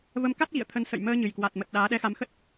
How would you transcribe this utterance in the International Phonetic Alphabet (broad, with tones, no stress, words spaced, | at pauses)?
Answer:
və˨˦mka˦˥t̚ɣḭ˧˨ə̯ t̪ʰə˨˦n sə̰˧˨j məː˧ɲɨ˨˩jkwa˨˩t̚mə˨˩t̚ ɗaː˨˦ɗɛ˧xa˨˦m xə˦˥t̚